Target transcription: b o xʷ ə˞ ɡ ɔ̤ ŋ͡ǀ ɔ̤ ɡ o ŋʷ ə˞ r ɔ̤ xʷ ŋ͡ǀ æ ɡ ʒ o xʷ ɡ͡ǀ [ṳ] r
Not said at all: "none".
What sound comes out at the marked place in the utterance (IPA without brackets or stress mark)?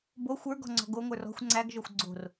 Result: o̤